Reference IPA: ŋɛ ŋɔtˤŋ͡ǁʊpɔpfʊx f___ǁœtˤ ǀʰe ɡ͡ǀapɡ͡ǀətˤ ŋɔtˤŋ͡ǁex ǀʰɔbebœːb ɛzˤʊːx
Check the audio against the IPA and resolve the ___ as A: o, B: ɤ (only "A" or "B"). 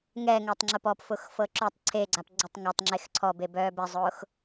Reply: B